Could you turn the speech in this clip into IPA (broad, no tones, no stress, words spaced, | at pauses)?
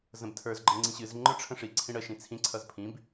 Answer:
zə̃btʰə˞zɡ͡ǃə ŋ͡ǀĩɕɨzŋ͡ǃə˞ ʈ͡ʂʰə̃ʂiǀʰĩ ɽə ʃĩt͡sʰĩǀʰʌz pʰĩb